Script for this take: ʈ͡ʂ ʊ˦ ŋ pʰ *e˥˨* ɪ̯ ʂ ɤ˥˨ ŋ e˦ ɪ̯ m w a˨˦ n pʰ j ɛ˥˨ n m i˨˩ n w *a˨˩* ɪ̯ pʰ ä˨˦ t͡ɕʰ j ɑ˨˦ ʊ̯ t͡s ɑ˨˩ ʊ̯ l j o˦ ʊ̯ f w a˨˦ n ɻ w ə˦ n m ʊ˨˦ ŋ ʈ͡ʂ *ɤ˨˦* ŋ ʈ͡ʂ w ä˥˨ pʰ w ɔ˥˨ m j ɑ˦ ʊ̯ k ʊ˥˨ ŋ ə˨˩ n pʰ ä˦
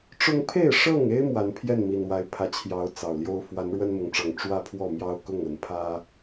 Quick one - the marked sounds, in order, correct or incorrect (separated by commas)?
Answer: correct, incorrect, incorrect